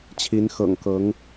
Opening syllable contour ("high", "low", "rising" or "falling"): rising